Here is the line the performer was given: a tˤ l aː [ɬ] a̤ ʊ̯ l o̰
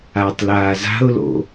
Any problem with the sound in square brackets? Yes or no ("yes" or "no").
yes